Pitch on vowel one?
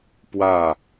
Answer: falling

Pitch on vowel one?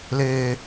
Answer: low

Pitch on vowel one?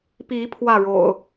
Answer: rising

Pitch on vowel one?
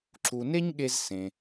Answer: low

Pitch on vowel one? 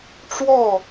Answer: falling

